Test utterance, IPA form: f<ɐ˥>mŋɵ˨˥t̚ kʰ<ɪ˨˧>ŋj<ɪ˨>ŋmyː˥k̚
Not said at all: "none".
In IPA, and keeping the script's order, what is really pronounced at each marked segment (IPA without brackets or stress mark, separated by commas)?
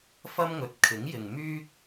ɐ˥, ɪ˨˥, ɪ˨